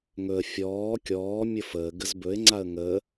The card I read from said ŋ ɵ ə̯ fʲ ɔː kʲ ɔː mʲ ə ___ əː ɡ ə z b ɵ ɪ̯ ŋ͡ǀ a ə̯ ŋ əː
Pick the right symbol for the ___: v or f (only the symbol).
f